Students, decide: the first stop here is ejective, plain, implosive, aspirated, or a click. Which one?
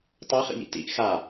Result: plain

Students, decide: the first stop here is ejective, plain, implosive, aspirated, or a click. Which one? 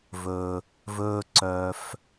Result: click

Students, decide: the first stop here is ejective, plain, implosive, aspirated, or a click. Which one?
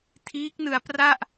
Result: aspirated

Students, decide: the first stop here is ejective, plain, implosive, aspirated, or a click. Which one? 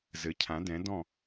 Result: aspirated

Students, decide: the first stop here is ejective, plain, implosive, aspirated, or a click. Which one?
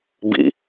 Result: plain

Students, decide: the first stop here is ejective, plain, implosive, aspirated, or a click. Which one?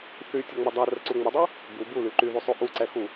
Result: plain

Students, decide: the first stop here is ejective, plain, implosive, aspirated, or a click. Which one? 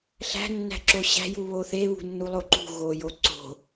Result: click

